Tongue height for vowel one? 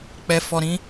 mid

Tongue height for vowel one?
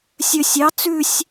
mid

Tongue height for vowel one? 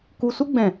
high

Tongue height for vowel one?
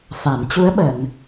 low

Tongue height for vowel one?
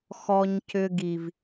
mid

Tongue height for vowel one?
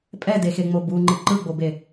mid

